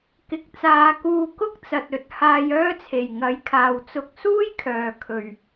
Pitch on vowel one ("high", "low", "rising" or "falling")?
rising